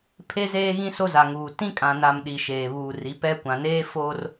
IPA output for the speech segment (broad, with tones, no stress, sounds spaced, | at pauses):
pʰ e˦ z eː˦ ɣ ĩ˦ s o˦ z a˨ ŋ uː˨ t ĩ˦ kʼ ã˨ n a˨ m ɗ i˨ ʃ eː˨ β uː˨ r i˨˦ p ɛ˦ kʷ ã˨ n eː˦ f oː˦ r